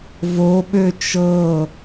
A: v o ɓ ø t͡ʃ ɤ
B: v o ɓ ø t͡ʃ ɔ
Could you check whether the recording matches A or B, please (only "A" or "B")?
A